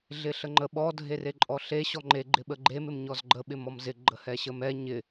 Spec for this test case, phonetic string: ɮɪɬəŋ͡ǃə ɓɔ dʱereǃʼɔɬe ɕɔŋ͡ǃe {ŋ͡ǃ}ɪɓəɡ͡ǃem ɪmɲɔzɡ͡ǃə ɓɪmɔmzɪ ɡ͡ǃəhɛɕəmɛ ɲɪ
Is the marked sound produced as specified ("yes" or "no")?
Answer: no